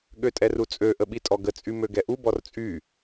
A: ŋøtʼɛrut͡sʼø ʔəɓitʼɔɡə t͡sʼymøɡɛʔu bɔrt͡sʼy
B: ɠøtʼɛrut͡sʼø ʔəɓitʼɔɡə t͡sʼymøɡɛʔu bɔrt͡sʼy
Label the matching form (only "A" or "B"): B